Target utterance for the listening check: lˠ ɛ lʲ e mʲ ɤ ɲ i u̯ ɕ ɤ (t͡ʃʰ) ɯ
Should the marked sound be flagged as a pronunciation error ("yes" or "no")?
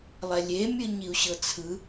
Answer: yes